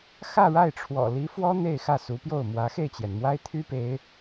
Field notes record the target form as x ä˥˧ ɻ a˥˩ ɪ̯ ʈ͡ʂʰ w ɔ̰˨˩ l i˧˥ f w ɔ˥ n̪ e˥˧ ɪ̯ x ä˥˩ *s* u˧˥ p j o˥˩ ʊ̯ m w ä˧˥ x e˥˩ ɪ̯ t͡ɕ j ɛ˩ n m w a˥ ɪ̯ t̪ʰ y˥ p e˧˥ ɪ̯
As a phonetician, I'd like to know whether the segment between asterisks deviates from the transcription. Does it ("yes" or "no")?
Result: no